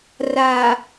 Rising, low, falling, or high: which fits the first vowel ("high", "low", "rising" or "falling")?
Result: low